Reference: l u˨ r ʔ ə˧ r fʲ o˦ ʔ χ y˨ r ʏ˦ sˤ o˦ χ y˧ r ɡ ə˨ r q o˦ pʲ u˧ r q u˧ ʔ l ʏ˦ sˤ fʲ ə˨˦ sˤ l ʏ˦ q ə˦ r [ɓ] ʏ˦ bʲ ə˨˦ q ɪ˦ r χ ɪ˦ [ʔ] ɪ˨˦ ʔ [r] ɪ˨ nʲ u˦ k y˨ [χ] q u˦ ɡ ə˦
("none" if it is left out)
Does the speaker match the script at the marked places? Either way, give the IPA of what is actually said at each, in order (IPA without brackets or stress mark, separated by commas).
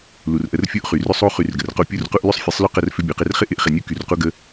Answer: f, ʔ, χ, r